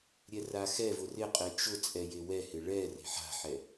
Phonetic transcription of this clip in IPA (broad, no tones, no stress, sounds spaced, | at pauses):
ɾʲ ɛ r a x ɛ v ʊ r ɪ qʼ e t͡ʃ ʊ t͡sʼ ɛ j e w ɛ h ɪ ɭ ɛ r e̤ ħ a̤ ħ ɛ